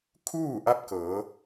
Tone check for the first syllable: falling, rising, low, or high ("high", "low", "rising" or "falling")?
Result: falling